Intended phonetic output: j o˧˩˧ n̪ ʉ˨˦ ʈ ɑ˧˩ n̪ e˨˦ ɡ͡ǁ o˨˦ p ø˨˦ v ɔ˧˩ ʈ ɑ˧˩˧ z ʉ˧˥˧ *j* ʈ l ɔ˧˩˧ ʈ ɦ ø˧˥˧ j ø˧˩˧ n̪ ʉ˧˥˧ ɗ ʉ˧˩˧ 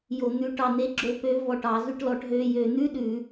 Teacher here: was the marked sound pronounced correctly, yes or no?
no